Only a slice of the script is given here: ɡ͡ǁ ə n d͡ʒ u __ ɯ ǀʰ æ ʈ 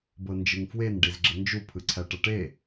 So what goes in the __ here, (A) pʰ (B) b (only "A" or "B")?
A